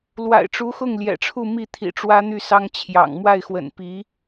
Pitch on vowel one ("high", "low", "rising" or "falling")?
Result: low